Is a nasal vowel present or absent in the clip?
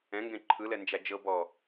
present